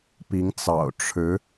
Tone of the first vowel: rising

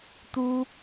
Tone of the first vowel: high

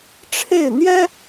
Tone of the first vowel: falling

